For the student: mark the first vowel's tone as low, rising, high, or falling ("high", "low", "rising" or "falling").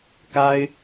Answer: high